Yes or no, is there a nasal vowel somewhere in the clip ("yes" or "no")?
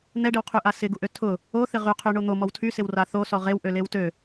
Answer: no